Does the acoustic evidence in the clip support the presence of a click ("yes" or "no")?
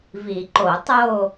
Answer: yes